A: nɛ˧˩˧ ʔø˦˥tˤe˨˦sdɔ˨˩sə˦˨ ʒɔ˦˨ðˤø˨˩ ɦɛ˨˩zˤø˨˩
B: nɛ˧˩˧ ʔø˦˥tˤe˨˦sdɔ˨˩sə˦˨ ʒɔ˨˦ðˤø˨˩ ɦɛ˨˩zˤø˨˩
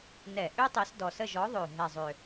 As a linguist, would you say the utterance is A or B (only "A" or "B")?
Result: B